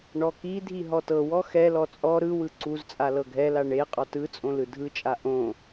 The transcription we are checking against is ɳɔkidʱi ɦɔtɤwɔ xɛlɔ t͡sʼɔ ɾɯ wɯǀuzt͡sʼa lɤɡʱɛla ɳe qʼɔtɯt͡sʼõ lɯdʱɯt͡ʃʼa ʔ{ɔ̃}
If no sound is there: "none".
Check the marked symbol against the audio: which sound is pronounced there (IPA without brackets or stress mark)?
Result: õ